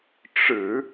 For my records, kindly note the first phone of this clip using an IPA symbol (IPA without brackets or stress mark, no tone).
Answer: ʈ͡ʂ